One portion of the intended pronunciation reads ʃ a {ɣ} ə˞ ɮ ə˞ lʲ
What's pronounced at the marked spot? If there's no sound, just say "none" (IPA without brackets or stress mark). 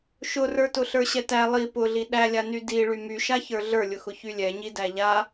ç